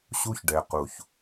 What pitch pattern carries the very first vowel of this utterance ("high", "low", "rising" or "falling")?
high